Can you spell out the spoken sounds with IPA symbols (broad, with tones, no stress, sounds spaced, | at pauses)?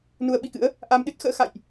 n u˧ ə̯ ɓ i˧ k ɨ̰˧˥ ə̯ | ʔ a˧ m ɗ ɨ˦˥ t̚ x ə̰ː˧˥ x a̰˧˨ j ʔ